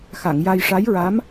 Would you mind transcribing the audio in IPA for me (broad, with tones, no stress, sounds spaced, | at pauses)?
x a˨˩˨ ŋ j a˧ j ʂ a˧˥ j ɹ a˧˥ m